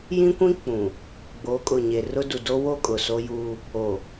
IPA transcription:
jĩ˦kʷĩ˦ k͡pũ˨ | ɡ͡boː˨˦kʼʊ˨ɲe˨ rʊ˦ du˨do˦wo˦ kʼʊ˨so˦juː˦ | o˨

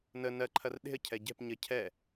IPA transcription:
nə nɜǃʰɐr ɗe̤ə̯cʰɛ ɟɛ̤p ɲə cʰɛ

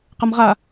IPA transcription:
qɐmʁa

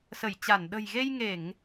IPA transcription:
sə˧˩jt͡ɕa˧˩n ɗə̤˨˩jɣe˧jŋe˧˩˨ŋ

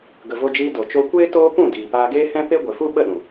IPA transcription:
ɡə˧vo˦d͡ʒiː˦ do˨t͡ʃo˧kʷeː˦ toː˦pũ˦˨diː˨ paː˧ɡeː˦hɛ̃˦ pe˦ɡʷe˨fu˦ ɓə˦˨ɗũ˨

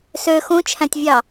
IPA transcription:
sø xũt͡ʃʰæ̃tʲvʲɑ

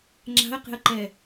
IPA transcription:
ŋ͡ǁa̤ə̯qe̤ə̯ǃɛ

